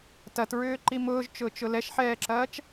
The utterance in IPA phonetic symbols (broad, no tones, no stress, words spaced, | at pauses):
tɐtɹʏːǃi mʊːʒt͡ʃʊːt͡ʃʊ lɛʃħɛːǁɐːt͡ʃ